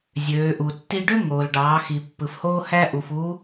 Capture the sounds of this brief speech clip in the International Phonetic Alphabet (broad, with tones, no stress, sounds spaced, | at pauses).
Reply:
zʲ øː˩˧ ʔ u˩ tː i˧ ɖ ø˥ ŋ oː˩ l ɖ ɑː˩˧ x i˩ pː ɯ˩˧ f h oː˥ h æ˥ ʔ u˩ f uː˧˥